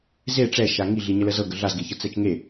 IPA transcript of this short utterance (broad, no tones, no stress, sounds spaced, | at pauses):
z e ʈ͡ʂ ɛ ʃ a ŋ i ɮ i ɲ ə l ə z ɤ ɡ ə ɮ a z ɡ e ç ɤ t͡s ɛ t͡ʃ ŋ e